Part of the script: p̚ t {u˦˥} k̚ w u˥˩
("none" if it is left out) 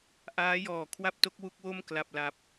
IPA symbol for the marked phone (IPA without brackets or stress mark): o˦˥